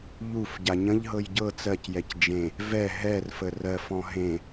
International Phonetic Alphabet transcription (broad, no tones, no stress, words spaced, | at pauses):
ʎufɟa ɲə̃ʎɦɤj ɟɤ t͡sɜcjɛc d͡ʒẽ | vɛ ɦɛrfə rɜfɔ̃ ɦẽ